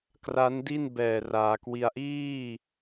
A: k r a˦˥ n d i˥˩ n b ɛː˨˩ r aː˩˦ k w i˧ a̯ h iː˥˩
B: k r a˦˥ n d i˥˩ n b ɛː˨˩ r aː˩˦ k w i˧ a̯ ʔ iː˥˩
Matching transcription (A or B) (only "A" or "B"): B